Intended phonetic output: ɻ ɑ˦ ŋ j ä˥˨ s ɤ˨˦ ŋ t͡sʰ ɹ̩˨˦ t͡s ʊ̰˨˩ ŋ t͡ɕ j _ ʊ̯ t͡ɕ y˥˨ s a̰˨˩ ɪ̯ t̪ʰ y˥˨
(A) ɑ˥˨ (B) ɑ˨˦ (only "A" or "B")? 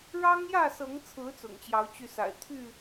B